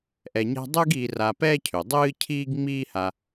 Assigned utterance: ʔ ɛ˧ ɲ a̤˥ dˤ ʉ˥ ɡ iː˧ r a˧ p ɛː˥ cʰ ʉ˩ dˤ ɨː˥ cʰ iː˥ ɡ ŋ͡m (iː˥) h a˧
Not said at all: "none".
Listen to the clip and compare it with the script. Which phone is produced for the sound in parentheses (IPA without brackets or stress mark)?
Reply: iː˥